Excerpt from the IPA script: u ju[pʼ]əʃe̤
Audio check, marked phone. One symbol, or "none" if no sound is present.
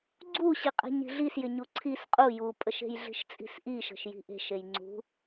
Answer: pʼ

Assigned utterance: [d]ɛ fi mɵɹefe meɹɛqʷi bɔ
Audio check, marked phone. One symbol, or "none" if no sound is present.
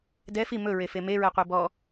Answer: d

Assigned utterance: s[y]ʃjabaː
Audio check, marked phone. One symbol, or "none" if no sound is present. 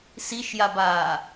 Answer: i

